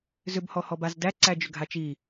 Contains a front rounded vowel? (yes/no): yes